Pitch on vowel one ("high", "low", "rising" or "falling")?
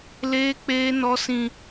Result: high